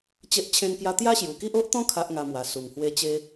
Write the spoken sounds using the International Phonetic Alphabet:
t͡ɕ e˦ ʔ t͡ɕʰ ẽ˦ n k j a˦ t̪ j a˦ ɕ j u˨˩ k i˦ ʔ o˦ ʔ t̪ ɔ̃˦ kʰ a˦ ʔ ŋ a˧ m w a˨˩ s u˨˩ ŋ h w e˥˧ t͡ɕ e˦

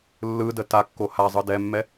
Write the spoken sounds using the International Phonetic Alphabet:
lː ɯ d ə t a kː o h a zˤ ɯ d ɛ mː ɛ

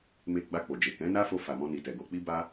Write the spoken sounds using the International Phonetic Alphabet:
m e˧ ɡ͡b a˧ k͡p o˨ d͡ʒ e˨ k ɛ̃˨˦ n a˦ f o˧ f a˨ m ɔ̃˧ n i˨ t ɛ˨ ɡ o˧ k͡p i˦ b a˦

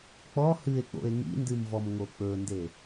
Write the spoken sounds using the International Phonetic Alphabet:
k͡p ɔ h ɨ e̯ k͡p o̰ e̯ ŋ ḭ n d ɨ m v ɔ m ŋ o k͡p ɵ n d e

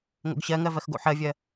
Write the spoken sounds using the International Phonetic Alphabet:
ŋ o̰ ɡ ɕ ɜ ŋ ɜ v ɜ x ɡ o̰ ħ ɜ vʲ ɜ

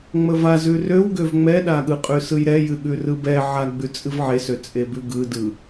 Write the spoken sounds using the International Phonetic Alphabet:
ŋ͡m ə v a z ʉ r ø w ɡ ø v ŋ͡m ɛ ɗ a ɠ ɯ qʼ ʉ s ɯ j ɾ ɛ j ɨ ɠ ʉ r ɯ b ɛ ʕ a ɡ͡b ʉ t͡sʼ ɨ v ʕ e s ø t͡sʼ e b ʉ ɡ ɯ d ɯ

